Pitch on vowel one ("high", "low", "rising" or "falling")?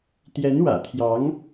rising